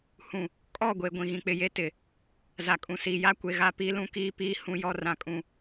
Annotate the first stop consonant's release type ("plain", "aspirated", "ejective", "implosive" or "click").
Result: ejective